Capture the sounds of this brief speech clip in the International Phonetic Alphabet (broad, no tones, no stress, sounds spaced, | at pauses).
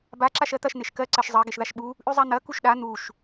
b a ǁ a ʃ ɜ t̪ ɐ ʃ n̪ e ʃ k ɜ ǀ ɜ ʃ zˤ ɜ ɡ e ʃ ð a ʃ ɓ u | ʔ ʉ zˤ a n̪ ɐ k u ʃ ɗ a n̪ u ʃ